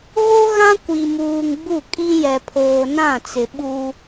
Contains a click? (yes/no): no